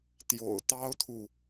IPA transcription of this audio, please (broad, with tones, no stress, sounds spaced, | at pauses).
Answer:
t̪ j o̰˨˩ ʊ̯ t̪ ɑ˥ ʊ̯ t̪ʰ u˨